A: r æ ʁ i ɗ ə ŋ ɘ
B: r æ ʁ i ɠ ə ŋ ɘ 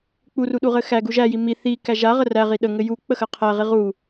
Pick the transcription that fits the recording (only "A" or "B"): A